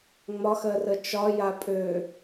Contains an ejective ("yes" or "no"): yes